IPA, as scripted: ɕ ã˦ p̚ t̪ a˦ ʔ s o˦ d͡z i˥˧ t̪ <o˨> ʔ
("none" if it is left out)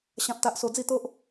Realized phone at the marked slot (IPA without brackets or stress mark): o˦